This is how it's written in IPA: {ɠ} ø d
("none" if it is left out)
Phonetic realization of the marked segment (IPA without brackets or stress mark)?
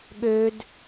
ɠ